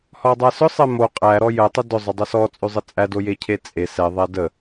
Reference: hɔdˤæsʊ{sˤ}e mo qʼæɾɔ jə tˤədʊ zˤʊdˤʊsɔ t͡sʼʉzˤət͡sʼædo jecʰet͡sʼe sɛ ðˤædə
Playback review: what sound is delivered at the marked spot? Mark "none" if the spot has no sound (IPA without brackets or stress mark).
sˤ